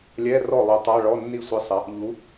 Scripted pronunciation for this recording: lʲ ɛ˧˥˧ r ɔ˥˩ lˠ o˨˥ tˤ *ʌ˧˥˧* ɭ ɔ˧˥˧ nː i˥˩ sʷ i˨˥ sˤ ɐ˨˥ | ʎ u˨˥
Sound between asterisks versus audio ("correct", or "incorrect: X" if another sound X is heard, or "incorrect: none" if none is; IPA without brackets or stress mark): incorrect: a˧˥˧